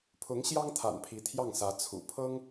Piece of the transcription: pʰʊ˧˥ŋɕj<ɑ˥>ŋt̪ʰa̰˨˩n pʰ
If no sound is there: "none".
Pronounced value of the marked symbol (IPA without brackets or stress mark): ɑ˥